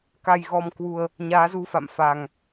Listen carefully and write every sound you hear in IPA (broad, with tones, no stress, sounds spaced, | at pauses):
k a˨˩ j ɣ ɔ˨˩ m k w u˨˩ ə̯ | ɲ aː˨˦ z u˧ f a̰˧˨ m f a˨˩ ŋ